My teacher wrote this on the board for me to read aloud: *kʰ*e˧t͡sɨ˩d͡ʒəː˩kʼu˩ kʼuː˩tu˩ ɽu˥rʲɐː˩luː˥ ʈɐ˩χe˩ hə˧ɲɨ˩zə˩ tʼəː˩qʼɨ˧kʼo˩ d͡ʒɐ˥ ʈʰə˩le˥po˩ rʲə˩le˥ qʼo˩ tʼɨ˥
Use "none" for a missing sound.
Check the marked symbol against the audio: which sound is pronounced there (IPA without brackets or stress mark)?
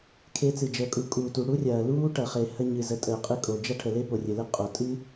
kʰ